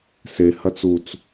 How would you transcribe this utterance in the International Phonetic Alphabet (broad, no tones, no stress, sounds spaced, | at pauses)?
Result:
s e h ɐ t͡s u t͡s